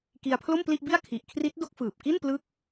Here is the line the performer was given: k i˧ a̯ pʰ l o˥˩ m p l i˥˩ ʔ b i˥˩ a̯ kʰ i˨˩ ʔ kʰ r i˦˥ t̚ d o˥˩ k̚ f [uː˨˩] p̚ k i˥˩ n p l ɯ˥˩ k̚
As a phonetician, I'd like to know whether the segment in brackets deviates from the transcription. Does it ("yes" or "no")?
yes